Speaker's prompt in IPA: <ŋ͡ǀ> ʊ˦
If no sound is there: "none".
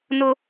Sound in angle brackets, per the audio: n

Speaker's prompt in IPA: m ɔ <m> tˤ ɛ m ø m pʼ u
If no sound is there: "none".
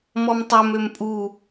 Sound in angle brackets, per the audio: m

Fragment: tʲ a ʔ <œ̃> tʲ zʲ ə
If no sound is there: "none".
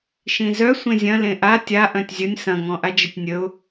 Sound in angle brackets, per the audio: œ̃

